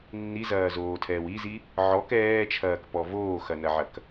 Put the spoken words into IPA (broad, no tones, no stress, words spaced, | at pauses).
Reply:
nːizɐːzoːtʰɛːw izi | ʕɔk ɛːt͡ʃʰɐːkpɔ voːxɐnɐʕɐk